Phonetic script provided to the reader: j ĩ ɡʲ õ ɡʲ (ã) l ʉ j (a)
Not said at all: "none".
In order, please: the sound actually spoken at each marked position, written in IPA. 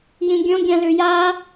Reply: ã, a

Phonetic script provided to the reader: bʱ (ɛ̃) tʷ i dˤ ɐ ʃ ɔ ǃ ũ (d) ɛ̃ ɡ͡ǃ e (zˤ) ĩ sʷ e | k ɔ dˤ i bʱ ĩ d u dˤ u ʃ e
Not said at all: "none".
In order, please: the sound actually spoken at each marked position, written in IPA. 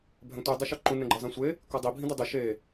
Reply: ɛ̃, n, zˤ

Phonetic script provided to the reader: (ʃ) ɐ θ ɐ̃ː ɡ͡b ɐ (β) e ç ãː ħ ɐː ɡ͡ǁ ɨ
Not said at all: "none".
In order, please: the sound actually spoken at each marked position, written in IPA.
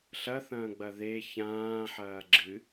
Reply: ɬ, ð

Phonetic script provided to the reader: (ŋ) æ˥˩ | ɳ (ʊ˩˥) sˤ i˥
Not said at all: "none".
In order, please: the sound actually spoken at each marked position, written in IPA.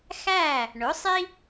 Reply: x, ʊ˩˥

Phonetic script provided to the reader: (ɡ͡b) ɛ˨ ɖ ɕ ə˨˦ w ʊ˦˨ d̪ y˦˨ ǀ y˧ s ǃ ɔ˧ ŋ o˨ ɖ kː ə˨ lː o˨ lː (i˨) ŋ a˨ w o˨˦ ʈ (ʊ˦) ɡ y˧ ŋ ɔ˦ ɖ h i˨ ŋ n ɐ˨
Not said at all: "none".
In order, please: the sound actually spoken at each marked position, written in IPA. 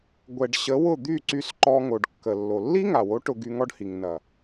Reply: ɡʷ, i˦, ʊ˧

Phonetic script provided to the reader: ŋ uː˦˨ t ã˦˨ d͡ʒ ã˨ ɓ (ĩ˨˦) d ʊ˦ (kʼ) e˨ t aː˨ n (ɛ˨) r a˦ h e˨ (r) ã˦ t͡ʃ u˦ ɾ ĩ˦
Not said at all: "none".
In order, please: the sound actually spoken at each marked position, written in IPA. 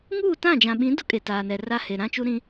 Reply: ĩ˨˦, kʼ, ɛ˨, ɾ

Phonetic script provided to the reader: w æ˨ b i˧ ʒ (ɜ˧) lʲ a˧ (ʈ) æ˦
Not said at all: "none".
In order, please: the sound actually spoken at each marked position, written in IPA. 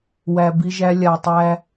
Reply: æ˧, tˤ

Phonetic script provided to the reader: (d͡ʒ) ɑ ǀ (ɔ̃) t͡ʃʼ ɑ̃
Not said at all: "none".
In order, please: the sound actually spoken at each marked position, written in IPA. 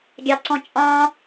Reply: ɡʲ, ɔ̃

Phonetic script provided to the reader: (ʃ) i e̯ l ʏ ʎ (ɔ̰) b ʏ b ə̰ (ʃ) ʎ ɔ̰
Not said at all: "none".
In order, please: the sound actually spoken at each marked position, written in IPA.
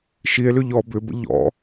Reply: ʃ, ɔ, none

